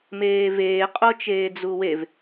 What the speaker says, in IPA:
meːveː qʼot͡ʃeːd͡zuwev

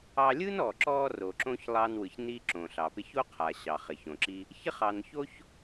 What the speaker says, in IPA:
ɑ˧lʲɯ˥nɔ˩ ǁɔ˧ ro˩ǁõ˧ç lˠɑ˧nwɯ˩ç ni˧ ǁõ˩ɬɑ˩pɪ˧ ço˥qʰa˩ɕɑ˩ χɪ˩çõ˩ǁi˧ | çɪ˥χɑ˩nço˥ç

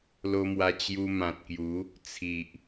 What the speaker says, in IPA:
lo˧mwa˧ t͡ɕju˧mã˨t̚ kju˨˦ | t͡sʰi˨ʔ

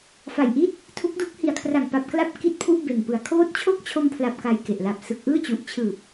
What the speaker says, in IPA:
fa˨˩jʔi˦˥t̚ | tʰu˦˥k̚du˦˥k̚ hi˨˩a̯kʰra˨˩ŋpa˨˩p̚ kla˥˩p̚ ki˥˩t̚pʰu˥˩ʔbe˨˩npɯ˨˩a̯ kʰoː˦˥t̚t͡ɕʰo˥˩k̚t͡ɕʰo˧mpʰla˨˩p̚ ka˧jke˨˩ʔla˨˩p̚ sɯ˨˩k̚ʔɯː˥˩t͡ɕu˨˩ʔ t͡ɕʰɯː˨˩p̚

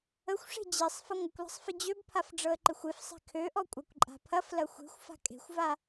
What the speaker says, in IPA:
əxʷʂe̤ d͡ʑesˤ fɐŋʷəkʷlə̤sˤ fɪd͡ʑøbpʰaf ɖ͡ʐɤə̯ǃɪxʷefsˤe̤ kʰøʔɔ kʷʼakʷǃʼa̤pʰɐflɐ xʷe̤xʷ fa̤kʼe̤xʷva

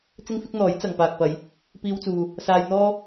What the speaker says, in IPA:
t͡sɪ˥ŋfɪ˥k̚n̪ɔː˨˥j t͡sɐ˨ŋ paː˨k̚pɐ˨˧j | piː˧wt͡suː˨ | saː˧jn̪ɔː˥

